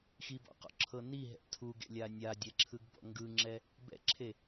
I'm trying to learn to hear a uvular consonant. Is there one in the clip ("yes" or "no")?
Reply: yes